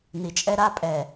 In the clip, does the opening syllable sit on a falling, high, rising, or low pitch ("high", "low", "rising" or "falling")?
low